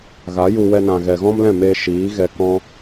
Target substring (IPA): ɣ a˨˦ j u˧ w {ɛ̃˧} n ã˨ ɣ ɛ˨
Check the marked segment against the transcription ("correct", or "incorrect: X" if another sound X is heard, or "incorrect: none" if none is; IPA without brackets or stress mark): incorrect: ɛ˧